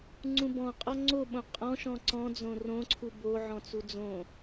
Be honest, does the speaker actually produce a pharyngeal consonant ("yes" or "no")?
yes